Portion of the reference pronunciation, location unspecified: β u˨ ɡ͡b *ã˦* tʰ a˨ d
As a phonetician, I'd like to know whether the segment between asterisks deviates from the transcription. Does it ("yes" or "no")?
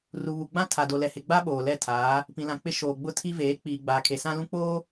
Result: no